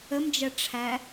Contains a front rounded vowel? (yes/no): no